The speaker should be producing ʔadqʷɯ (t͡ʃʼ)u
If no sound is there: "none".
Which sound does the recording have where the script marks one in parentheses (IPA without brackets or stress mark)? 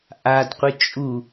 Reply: t͡ʃʼ